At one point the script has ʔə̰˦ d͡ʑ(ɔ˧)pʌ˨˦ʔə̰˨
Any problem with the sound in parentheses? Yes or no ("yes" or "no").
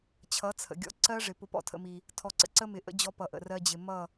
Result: no